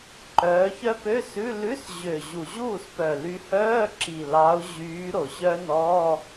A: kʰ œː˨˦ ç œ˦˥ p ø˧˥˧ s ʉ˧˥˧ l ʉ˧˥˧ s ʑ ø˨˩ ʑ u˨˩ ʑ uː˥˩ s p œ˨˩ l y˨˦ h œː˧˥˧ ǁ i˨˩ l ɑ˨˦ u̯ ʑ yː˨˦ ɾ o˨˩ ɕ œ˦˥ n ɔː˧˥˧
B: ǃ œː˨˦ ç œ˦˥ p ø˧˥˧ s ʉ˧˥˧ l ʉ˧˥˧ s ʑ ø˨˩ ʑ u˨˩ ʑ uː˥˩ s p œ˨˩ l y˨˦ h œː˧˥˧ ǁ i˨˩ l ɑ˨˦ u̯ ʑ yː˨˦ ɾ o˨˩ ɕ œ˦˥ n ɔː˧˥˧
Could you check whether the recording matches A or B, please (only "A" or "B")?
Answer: B